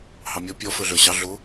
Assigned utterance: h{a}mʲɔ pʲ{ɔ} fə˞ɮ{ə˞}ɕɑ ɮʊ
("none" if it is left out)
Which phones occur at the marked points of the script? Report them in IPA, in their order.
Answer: ɑ, ɔ, ə˞

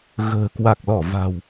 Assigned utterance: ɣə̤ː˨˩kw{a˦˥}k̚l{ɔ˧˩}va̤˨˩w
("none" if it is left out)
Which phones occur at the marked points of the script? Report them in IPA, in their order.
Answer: a˨˩, ɔ˧˩

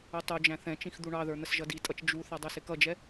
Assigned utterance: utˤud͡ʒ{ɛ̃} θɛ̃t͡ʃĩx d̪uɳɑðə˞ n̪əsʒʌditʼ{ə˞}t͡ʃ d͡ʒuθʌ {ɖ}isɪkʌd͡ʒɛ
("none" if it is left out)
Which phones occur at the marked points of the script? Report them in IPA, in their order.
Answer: æ̃, ʌ, dˤ

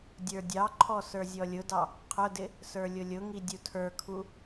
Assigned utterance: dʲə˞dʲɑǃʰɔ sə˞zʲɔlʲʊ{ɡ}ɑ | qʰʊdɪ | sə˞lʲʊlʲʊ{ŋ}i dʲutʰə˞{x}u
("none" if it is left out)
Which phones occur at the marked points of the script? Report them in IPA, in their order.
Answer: d, ŋ, kʰ

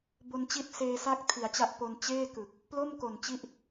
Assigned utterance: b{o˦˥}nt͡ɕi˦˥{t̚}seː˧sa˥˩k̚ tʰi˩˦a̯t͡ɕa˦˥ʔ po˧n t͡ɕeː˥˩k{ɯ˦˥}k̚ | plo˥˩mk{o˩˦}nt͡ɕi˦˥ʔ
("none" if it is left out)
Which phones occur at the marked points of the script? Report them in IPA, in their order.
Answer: o˧, t̚, ɯ˨˩, o˨˩

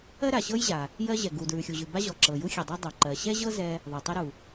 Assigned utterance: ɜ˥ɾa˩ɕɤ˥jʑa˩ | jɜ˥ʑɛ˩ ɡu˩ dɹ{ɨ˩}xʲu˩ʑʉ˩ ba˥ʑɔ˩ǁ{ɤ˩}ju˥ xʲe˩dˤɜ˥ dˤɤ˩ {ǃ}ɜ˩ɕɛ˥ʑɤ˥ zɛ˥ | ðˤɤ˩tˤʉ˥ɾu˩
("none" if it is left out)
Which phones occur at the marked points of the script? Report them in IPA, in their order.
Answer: ʉ˩, ɤ˩, ǃ

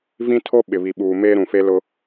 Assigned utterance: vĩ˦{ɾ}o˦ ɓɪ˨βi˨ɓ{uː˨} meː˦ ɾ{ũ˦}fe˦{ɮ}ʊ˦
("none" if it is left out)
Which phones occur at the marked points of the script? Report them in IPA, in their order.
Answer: tʰ, uː˨, ũ˨, l

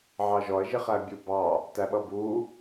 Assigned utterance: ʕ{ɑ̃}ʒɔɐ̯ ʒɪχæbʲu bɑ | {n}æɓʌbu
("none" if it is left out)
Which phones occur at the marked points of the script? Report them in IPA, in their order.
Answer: ɑ, t

